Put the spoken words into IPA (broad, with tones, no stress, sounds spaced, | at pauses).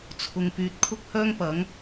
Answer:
t͡sʰ ʊ˨ ŋ p yː˨ t̚ kʰ ʊ˥ k̚ h œː˥ ŋ p ɐ˨˥ ŋ